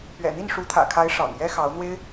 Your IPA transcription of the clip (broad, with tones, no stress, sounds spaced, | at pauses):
p ɥ ɛ̰˨˩ n̪ i˥˩ n ʂ u˧˥ t̪ʰ ä̰˨˩ kʰ a˧˥ ɪ̯ ʂ ɑ̰˨˩ ŋ j ɛ˥ x ɑ˧˥ ʊ̯ n̪ w e˥ ɪ̯